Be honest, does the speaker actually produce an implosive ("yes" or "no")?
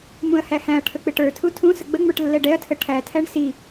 no